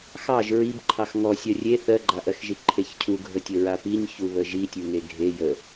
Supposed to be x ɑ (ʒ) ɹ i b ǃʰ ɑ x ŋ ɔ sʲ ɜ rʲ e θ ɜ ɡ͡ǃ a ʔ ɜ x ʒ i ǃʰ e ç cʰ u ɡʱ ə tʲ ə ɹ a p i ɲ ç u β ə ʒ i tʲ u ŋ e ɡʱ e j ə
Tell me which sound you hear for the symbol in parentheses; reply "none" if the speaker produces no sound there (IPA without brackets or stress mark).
ʒ